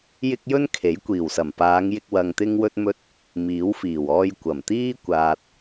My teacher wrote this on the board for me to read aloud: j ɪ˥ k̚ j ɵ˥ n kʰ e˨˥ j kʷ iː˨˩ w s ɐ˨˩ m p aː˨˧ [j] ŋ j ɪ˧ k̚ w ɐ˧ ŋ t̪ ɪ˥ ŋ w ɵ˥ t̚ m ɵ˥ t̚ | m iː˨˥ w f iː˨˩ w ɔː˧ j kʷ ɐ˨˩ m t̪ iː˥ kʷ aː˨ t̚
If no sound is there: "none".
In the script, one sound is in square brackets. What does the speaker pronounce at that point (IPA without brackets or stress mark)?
none